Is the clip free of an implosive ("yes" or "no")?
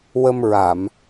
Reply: yes